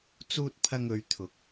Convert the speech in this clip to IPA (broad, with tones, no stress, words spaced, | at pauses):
t͡suː˥t̚ pʰɐ˧ŋɵ˨˧ɥt̪ʰʊ˨˥k̚